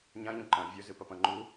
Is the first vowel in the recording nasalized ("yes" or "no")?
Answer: yes